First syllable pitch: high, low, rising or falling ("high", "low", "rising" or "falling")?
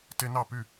high